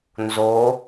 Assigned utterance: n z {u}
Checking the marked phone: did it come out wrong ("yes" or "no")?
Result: yes